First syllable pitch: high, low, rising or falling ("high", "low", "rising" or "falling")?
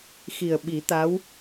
low